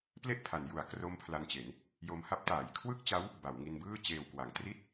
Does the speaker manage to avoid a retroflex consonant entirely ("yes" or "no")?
yes